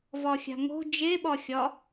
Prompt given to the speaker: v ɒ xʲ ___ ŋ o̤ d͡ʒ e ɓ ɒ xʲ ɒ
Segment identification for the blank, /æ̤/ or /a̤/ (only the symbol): a̤